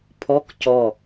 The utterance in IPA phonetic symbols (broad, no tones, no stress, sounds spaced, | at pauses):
pʰ ɔ k c ɔ